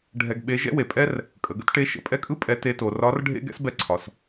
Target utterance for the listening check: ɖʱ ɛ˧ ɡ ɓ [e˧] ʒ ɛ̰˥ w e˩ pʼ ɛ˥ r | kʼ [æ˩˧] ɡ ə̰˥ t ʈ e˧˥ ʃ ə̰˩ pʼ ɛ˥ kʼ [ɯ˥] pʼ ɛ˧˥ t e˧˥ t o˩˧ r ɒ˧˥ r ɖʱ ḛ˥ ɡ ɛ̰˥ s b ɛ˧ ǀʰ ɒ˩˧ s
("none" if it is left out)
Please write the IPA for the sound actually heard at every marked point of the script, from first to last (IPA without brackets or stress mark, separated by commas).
e˧˥, ə˩˧, ɯ˥